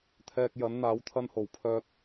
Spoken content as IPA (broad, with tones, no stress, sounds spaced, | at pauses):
t̪ʰ ɛː˧ k̚ j ɐ˨˥ n n̪ aː˨˥ w t̪ʰ ɐ˧ n h o˨˩ w pʰ œː˧ t̚